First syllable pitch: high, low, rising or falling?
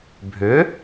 rising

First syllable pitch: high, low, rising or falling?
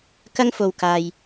high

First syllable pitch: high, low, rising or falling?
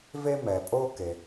high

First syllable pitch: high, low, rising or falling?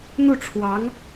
falling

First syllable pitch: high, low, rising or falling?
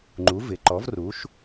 rising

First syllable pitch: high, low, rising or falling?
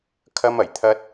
high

